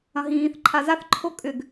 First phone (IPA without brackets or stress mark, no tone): ɐ̃